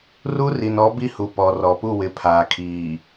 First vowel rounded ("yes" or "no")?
yes